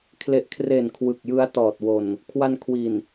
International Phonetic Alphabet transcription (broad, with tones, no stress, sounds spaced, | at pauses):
kʰ l e˨˩ ʔ kʰ r e˨˩ n kʰ w ɯ˨˩ k̚ j ɯ˦˥ a̯ t ɔː˨˩ t̚ w o˨˩ n | kʰ w a˧ n kʰ w i˨˩ n